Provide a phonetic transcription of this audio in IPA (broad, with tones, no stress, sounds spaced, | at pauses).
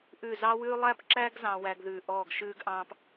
ʔ ʉ˦˨ z ɑ˥ w ʉː˥ lˠ æ˥ p ǁ æ˥ ɡ z ɑ̃˥ w æ˥ ɡ ð ʉː˦˨ ʔ ɔː˦˨ ɡ ʃ ʉː˥ ɡ ʔ ɑ̃ː˥ p